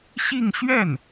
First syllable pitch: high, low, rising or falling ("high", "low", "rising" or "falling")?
falling